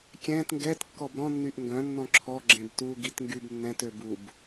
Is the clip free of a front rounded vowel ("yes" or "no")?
no